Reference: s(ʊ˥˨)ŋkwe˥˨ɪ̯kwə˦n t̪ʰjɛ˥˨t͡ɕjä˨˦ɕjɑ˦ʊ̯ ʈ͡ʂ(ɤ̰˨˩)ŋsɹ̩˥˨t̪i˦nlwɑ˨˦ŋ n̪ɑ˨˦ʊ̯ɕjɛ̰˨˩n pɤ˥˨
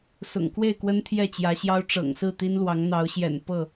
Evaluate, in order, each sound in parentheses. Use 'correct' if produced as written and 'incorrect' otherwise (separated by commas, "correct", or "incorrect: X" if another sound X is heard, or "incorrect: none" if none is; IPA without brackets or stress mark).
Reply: incorrect: ʊ̰˨˩, correct